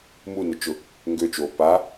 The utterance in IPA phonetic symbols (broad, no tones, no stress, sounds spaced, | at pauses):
m u n ʊ t͡ʃ ʊ | ŋ ɡ ø t͡ʃ oː p a